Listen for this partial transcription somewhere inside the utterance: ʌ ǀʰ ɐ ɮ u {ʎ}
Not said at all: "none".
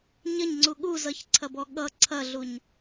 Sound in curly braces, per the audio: ɲ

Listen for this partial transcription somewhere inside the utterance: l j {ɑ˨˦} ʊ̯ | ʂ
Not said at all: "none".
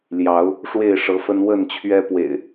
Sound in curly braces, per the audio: ɑ˨˦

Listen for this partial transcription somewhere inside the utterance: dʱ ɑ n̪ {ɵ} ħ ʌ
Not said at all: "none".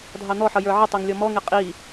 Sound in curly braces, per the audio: ɔ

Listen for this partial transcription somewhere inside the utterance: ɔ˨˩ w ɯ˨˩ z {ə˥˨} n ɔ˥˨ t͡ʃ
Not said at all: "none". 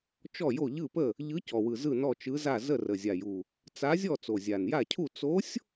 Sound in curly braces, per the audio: ɯ˥˨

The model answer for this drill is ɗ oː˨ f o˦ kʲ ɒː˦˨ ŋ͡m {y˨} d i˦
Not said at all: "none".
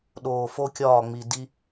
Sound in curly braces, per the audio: i˨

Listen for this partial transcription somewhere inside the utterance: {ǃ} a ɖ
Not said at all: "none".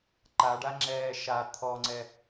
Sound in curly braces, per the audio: ǃ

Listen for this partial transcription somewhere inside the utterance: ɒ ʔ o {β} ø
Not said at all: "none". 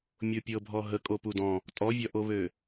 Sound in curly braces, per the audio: β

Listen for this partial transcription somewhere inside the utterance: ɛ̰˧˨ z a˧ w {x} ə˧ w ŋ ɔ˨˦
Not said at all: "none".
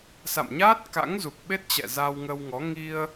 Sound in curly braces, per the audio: ŋ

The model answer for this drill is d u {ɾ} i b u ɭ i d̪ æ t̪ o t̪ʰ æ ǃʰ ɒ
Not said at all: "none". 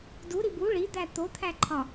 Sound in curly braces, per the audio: ɾ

